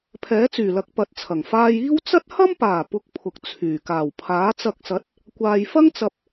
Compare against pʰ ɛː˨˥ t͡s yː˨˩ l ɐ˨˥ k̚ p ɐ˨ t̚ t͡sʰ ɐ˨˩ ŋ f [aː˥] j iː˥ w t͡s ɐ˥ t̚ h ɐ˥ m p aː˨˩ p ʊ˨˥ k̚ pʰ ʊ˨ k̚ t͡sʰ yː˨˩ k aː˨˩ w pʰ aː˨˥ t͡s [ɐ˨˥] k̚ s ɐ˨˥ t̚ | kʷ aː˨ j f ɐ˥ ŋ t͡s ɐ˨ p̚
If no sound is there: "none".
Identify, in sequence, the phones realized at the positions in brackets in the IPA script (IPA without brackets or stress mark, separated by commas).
aː˧, ɐ˧